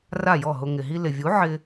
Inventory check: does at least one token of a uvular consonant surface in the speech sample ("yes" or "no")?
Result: no